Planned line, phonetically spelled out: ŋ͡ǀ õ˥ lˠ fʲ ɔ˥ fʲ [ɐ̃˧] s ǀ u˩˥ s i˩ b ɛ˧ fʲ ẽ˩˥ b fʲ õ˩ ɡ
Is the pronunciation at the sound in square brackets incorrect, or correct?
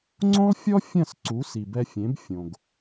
incorrect